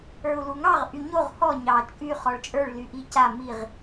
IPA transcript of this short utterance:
ə˞ u̯ l u ŋ ɑ ʁ ʔ y ɲ o ʁ h ɔ ɲ ɑ t͡ʃʼ y χ ɔ ɭ t͡ʃʼ ə˞ ɭ l y ʔ i c a m i ʁ

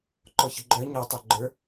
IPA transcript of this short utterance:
ǃ ɔ ç ə ɡ͡ǃ œ ɲ ɔ tˤ œ ɡ͡ǃ ə˞

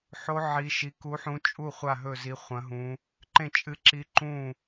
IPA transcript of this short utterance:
ħ o˧˥ ʕ i˧˥ ʃ i˧˥ k u˧˥ ħ ũ˧˥ t͡ʃʼ u˥˨ χʷ a˥˨ ɦ ɵ˥˨ z i˧˥ χʷ ɐ̃˧˥ ɦ ũ˧˥ | ǃ ẽ˥˨ t͡ʃʼ ɨ˧˥ ǁ i˧˥ ǃ ũ˥˨

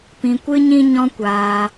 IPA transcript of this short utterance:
p ĩ˧ kʷ ɨ˦ ɲ ĩ˦ ɲ ɔ̃˦ kʷ aː˧

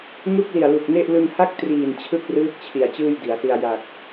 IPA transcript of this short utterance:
ŋ u˥˩ k̚ l i˨˩ a̯ l u˨˩ k̚ n e˥˩ ʔ l ɯ˧ ŋ h a˥˩ k̚ t r iː˨˩ n t͡ɕʰ ɯ˥˩ k̚ r ɯː˦˥ k̚ t͡ɕʰ i˩˦ a̯ t͡ɕ ɯː˥˩ j d i˩˦ a̯ s i˧ a̯ j a˨˩ k̚

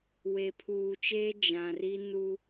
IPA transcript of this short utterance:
w e˨ pʰ uː˨ t͡ʃ eː˦ d͡ʒ ã˨ r i˦ n u˦

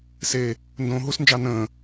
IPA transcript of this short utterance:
s e | n d õː ɦ u s n d͡ʒ ɑ n ə̃ː

